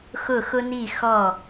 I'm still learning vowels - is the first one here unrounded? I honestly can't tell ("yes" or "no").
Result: no